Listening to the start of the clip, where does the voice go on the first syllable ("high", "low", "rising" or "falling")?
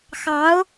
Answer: rising